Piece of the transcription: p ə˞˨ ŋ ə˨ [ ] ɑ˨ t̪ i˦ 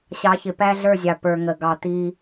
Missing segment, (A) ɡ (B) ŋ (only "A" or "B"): A